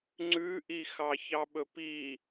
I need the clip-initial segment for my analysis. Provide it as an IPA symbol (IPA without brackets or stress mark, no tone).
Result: ŋ͡ǀ